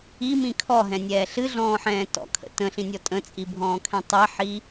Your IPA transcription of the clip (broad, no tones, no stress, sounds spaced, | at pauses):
i m ĩ kʰ ɔ ɦ ɛ̃ nʲ ɛː ɬ ɨ ɮ ɔ̃ː ħ ɛ̃ː t ɔ̰ kʰ ə̰ t ə̃ ɬ ĩ nʲ ɔ tʼ ə̃ t͡sʼ i bʱ ɔ̃ː kʰ ɛ̃ tˤ ɛ ħ i